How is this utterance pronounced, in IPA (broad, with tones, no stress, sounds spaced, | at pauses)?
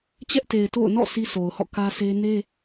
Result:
t͡ɕ ɛ˦ ʔ t e˨ ɪ̯ t o̰˦˨ ʊ̯ n ɔ̰˦˨ sʰ i˦ s o˨ ʊ̯ h ɔ̰˦˨ k ä˦ sʰ e˦ n e˦